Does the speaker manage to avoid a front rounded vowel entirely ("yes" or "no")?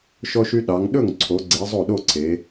no